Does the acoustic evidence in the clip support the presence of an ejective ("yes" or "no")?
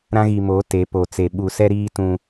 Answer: no